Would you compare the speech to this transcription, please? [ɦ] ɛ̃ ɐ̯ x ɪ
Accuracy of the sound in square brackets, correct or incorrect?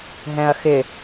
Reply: correct